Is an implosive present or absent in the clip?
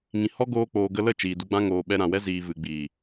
present